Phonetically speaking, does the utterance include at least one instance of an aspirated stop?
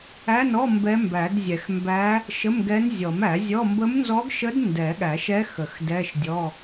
no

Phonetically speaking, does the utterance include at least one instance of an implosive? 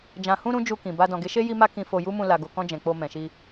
no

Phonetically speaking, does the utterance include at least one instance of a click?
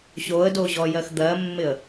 no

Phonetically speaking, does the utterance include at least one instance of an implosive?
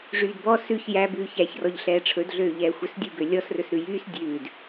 no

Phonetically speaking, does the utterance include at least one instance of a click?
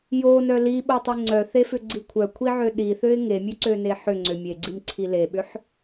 yes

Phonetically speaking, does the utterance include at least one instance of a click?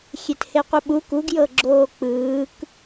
yes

